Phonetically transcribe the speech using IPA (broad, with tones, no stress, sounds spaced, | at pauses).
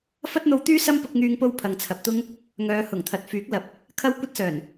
f ɐ˥ t̚ n̪ o˧ w t̪ yː˥ s ɐ˥ m p ʊ˧ k̚ ŋ yː˧ ŋ p o˧ w pʰ ɐ˨ ŋ t͡sʰ ɐ˨ p̚ t̪ ʊ˥ ŋ | ŋ œː˨˧ h ʊ˨˩ ŋ t̪ʰ ɐ˨ t̚ f yː˨˥ k̚ l ɐ˨ p̚ | kʰ ɐ˥ w kʷ ɐ˥ t̚ s œː˨˩ n